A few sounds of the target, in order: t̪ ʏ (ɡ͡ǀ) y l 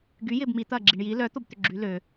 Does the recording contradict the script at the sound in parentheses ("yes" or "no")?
yes